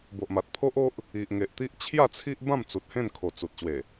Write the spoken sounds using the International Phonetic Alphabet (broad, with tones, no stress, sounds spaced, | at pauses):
b o˨ ʔ m a˨ t̚ pʰ o˦ ʔ o˦ ʔ | i˨ ʔ ŋ e˨ ʔ t̪ i˦ ʔ t͡ɕʰ j a˥˧ t͡sʰ i˦ ʔ b ã˥˧ m t͡s u˨ t̚ h ẽ˥˧ n kʰ o˨˩ t͡s u˨ t̚ ɕ w e˨˩